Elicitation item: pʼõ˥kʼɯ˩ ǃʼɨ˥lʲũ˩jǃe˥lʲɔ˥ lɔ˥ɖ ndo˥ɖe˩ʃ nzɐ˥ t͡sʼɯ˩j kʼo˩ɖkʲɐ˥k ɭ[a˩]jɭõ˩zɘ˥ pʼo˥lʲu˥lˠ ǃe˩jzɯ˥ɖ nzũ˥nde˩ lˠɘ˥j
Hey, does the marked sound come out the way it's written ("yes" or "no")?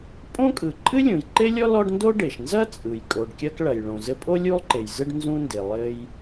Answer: no